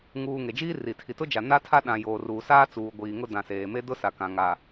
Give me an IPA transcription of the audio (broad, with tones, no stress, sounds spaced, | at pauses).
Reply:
ŋ uː˨ ŋ e˨ d͡ʒ iː˦ r i˨ tʰ i˨ t ʊ˦ d͡ʒ a˨ n a˦ tʰ a˦ ɗ ã˨ j oː˨ r uː˨ s aː˦ t͡s uː˨ ɡʷ iː˨ ŋ ʊ˦ d ã˨ s eː˨ m e˦ d ʊ˦ s a˨ k ã˨ ŋ aː˨